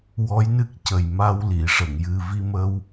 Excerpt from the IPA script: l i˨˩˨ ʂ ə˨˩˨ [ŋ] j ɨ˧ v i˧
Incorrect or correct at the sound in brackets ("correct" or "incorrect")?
correct